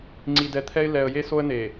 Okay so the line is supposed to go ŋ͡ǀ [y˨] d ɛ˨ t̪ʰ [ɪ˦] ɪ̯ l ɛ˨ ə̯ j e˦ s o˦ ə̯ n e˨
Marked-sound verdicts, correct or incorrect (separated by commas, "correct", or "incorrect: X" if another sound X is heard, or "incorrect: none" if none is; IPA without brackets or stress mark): incorrect: i˨, incorrect: ɛ˦